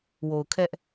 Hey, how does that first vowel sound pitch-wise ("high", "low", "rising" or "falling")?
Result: low